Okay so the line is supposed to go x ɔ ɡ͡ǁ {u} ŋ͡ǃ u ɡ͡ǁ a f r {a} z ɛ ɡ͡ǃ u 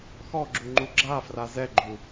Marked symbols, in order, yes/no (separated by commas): yes, yes